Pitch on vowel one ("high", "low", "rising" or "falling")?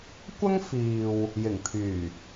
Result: high